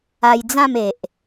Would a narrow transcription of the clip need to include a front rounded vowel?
no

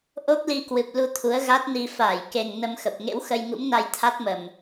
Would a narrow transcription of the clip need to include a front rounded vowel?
no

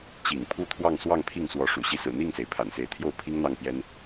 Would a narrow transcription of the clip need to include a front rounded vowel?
no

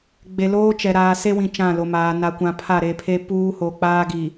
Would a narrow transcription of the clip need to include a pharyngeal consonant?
no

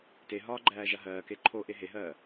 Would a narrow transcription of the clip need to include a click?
yes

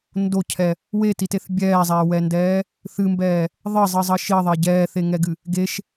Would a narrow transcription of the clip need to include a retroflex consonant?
no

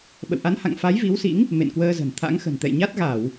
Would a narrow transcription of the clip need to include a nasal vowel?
no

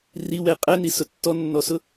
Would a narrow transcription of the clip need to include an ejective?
yes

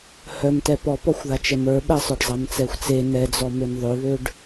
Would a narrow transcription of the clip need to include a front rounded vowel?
yes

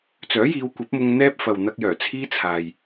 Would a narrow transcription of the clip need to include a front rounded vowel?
yes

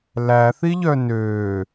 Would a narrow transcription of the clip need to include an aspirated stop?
no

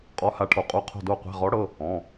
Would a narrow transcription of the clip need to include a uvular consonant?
yes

